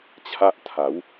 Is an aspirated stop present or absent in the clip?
present